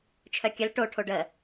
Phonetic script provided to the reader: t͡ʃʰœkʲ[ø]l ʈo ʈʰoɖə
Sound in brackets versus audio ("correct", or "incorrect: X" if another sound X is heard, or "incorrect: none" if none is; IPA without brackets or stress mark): incorrect: ə